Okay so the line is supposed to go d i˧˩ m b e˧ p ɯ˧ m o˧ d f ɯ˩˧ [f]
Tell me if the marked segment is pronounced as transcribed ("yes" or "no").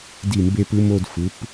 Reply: no